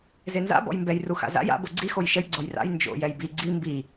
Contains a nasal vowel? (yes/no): no